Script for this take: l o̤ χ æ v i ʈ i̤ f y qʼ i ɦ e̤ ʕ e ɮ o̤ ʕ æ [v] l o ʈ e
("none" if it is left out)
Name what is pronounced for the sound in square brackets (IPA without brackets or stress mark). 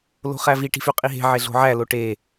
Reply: none